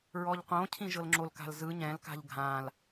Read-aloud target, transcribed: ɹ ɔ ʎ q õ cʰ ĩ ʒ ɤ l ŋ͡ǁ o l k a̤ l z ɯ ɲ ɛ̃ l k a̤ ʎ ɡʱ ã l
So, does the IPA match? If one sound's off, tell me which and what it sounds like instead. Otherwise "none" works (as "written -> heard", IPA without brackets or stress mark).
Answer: none